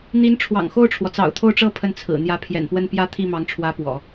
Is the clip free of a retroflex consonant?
no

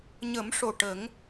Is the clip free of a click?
yes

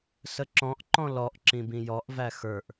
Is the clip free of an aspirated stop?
yes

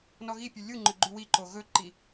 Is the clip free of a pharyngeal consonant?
yes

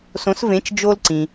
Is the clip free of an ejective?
yes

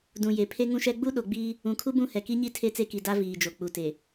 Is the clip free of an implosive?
no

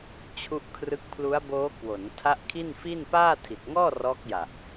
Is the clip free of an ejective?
yes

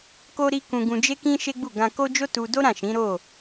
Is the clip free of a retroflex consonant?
yes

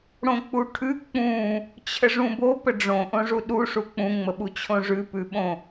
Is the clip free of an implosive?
no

